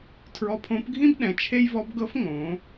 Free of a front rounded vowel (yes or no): yes